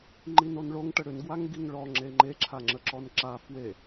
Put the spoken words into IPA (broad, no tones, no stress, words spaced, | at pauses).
ŋ͡ǃinonɭoŋ ʈəɽʏnɡwaŋ ɡiŋɭɔ ŋ͡ǁeŋ͡ǃeǁʰaŋ͡ǁə ǁɔnǁa fwe